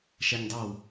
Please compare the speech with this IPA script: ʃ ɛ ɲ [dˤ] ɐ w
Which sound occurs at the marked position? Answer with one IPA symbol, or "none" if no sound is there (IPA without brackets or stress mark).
dˤ